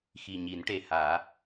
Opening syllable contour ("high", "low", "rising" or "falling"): low